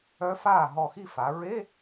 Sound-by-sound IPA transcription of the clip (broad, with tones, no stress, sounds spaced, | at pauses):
œ˧˥ f aː˥˩ ɦ ɔ˧˩ x i˥˩ f a˩˧ ɹ e˧˥˧